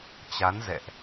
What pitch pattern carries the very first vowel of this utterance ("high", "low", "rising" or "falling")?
rising